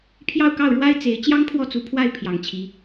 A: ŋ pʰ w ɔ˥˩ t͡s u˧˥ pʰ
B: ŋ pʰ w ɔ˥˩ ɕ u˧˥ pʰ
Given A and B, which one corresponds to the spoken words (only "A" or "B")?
A